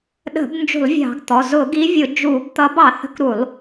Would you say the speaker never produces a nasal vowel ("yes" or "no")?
yes